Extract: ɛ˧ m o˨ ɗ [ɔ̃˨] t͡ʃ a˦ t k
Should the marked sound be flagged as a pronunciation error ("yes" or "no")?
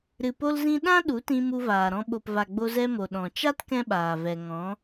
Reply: no